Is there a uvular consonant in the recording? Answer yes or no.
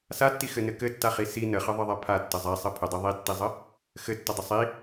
yes